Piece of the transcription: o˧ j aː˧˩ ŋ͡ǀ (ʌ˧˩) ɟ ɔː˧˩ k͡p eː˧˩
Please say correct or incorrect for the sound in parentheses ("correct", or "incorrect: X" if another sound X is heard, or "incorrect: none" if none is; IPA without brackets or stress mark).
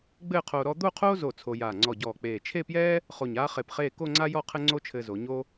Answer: incorrect: ɔ˧˩